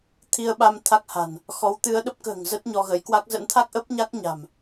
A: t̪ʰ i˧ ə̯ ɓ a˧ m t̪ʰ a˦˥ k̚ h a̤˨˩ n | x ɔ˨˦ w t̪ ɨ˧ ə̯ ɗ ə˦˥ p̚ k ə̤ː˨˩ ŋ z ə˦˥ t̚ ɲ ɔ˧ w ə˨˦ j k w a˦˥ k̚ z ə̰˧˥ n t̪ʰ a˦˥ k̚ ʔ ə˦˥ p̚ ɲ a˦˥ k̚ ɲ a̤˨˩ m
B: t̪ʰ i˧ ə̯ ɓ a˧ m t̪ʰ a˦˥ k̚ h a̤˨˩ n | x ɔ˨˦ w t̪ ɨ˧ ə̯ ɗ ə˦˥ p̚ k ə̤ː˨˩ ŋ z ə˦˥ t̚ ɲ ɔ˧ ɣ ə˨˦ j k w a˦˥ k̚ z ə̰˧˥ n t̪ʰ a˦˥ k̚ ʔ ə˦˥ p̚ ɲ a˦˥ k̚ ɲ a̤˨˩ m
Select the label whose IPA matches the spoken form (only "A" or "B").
B